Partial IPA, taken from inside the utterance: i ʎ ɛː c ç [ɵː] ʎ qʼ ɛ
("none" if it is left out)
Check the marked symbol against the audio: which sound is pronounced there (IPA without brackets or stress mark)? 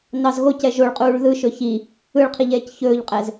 ɵː